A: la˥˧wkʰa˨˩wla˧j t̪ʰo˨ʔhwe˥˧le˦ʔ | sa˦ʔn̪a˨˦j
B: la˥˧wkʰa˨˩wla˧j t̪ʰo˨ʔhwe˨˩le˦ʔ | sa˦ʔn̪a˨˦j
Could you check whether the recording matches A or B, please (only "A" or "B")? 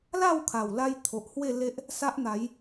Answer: A